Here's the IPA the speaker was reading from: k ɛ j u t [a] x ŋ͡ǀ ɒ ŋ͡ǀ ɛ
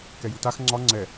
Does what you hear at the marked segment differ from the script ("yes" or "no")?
no